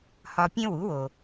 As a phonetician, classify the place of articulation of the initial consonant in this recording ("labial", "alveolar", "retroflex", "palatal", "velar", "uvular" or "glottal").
glottal